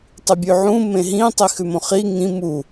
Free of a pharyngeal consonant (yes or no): no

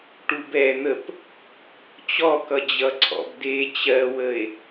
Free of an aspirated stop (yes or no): no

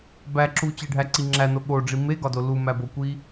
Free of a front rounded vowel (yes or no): yes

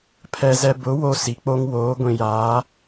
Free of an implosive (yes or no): yes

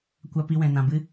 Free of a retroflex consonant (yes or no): yes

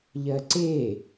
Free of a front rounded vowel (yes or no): yes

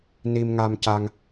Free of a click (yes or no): yes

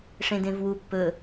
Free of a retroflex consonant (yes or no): no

